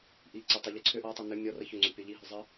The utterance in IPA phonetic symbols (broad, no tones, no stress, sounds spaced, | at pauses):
ʔ i ǀ ə tˤ i ʎ ə ǀʰ ʏ ʔ ɔ tˤ i n ʏ mʲ ɔ r ə ç ʏ ŋ͡ǀ ʏ pʲ ɔ ʎ i ɦ ʏ zˤ ə